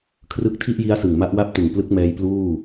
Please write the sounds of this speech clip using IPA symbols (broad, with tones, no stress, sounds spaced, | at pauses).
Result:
kʰ r ɯ˦˥ k̚ tʰ i˥˩ ʔ j i˦˥ a̯ s ɯ˨˩ ŋ m a˦˥ ʔ w a˥˩ p̚ t ɯ˨˩ ŋ p l ɯ˦˥ k̚ m ɛː˧ j p l uː˥˩